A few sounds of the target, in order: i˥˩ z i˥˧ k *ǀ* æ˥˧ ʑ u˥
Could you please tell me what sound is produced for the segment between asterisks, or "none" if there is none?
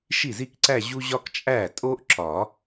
ǀ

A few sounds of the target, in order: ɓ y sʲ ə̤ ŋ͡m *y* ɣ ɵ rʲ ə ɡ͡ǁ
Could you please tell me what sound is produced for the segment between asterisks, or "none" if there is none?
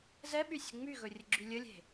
y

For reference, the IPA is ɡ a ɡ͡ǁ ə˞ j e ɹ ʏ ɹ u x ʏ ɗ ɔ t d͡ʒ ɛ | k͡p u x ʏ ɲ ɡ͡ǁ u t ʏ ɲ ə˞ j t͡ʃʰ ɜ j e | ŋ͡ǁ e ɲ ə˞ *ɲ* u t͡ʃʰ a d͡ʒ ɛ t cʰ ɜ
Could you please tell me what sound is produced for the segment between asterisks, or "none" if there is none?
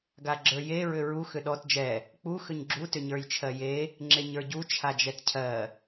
ɟ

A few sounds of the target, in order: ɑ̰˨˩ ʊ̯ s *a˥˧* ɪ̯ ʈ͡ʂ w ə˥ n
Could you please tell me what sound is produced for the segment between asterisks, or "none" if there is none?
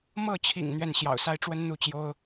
a˥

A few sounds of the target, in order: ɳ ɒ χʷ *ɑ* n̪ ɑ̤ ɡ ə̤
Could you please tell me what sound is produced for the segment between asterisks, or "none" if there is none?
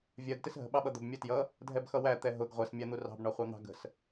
ɑ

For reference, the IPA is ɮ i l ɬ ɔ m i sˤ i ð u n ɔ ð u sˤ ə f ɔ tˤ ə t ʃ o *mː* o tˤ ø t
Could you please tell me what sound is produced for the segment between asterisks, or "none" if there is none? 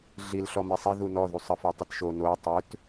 n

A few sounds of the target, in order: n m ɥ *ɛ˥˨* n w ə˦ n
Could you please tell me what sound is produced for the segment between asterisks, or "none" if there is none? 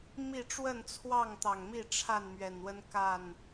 ɛ˨˩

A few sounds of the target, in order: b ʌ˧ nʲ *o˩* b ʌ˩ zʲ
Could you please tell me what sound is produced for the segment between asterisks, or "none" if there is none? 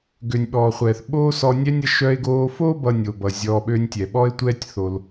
o˩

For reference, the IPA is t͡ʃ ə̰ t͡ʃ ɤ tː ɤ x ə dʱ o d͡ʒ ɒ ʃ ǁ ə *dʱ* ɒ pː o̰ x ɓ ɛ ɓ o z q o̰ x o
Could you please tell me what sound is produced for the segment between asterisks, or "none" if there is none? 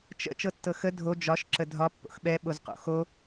dʱ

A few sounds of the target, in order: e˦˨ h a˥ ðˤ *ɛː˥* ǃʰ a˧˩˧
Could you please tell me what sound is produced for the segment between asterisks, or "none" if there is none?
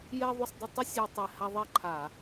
ɛ˥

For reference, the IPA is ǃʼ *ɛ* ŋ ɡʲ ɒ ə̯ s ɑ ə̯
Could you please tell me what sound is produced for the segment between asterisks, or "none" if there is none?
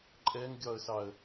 ɛ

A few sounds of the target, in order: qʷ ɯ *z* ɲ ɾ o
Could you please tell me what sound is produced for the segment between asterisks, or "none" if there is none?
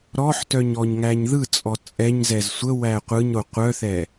none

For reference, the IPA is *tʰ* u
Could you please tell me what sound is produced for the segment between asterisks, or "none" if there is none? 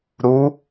ɾ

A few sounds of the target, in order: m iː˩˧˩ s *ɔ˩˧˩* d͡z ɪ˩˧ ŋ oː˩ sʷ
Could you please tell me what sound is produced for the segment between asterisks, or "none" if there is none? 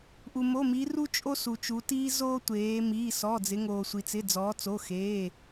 ɔ˩˧˩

